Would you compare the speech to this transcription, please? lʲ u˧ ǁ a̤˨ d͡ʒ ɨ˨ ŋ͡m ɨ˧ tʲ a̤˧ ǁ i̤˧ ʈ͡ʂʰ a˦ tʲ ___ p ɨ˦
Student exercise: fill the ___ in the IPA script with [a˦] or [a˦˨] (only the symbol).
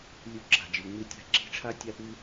a˦